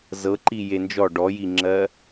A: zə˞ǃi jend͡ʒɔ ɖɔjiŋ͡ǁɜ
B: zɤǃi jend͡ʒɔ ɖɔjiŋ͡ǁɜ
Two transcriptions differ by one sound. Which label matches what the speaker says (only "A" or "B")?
B